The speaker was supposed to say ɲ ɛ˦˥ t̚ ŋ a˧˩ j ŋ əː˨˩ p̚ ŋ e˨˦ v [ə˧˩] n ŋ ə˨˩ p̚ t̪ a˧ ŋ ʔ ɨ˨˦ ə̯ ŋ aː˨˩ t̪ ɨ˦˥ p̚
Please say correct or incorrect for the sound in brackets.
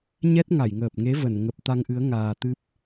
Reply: correct